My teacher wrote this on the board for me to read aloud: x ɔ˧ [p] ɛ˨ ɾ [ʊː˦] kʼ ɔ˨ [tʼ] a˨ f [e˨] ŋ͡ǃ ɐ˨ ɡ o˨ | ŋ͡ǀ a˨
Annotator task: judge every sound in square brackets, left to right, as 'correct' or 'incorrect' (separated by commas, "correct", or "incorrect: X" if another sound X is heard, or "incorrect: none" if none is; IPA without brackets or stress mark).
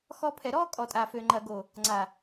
incorrect: pʰ, incorrect: ɔː˦, correct, incorrect: ø˨